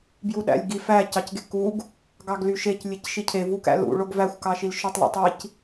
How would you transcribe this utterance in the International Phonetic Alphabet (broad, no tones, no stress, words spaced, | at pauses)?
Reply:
bjuɗæ̰lʲɡi fæ cɑcɡekuɡ | ɡɑɡlyʃec lʲecʃicʰe vukæ̰lṵ ɭoɡvæxʷ kɑʃilʃøtˤ lo̰tˤic